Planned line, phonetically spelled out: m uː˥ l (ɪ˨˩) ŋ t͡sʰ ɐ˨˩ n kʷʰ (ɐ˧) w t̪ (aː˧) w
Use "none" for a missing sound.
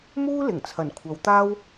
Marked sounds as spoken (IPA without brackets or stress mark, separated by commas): ɪ˨˩, ɐ˨˧, aː˥